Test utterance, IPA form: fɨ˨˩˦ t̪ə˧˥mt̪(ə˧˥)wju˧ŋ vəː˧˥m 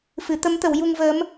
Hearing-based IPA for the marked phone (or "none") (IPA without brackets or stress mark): ə˨˩˦